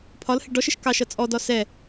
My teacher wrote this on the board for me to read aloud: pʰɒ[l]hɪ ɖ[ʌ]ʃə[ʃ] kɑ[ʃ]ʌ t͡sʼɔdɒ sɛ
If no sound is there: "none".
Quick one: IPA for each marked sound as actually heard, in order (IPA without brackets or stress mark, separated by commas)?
l, ɔ, ʃ, ʃ